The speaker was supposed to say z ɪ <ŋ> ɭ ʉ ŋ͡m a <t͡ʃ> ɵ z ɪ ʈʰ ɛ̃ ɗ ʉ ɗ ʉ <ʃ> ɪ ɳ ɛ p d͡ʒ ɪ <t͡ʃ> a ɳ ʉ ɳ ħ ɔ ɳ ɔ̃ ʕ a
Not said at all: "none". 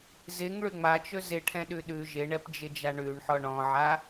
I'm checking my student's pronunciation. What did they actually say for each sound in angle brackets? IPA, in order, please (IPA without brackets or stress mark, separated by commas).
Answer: ŋ, t͡ʃ, ʒ, d͡ʒ